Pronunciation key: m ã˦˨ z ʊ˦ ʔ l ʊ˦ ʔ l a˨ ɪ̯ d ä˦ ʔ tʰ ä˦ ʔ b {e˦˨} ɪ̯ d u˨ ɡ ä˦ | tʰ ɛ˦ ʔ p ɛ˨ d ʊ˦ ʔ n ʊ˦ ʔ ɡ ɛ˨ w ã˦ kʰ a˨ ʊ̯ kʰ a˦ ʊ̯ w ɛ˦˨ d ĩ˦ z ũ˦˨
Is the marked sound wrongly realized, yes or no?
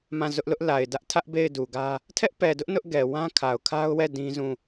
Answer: no